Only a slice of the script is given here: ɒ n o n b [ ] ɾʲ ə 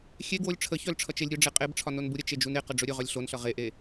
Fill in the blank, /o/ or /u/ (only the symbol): u